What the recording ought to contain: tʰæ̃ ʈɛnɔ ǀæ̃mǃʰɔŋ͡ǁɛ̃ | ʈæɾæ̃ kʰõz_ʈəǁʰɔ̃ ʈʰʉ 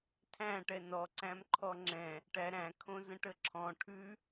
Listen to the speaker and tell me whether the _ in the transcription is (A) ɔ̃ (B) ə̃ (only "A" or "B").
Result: B